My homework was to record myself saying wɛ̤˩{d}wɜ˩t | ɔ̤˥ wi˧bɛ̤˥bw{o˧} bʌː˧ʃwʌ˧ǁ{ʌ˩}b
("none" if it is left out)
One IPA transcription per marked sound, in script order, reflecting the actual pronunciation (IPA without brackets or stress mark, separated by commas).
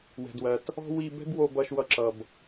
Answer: d, o˧, ʌ˩